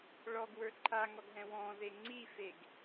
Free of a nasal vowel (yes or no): no